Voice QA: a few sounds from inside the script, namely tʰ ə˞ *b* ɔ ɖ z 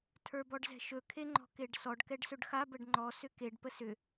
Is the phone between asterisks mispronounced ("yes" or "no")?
no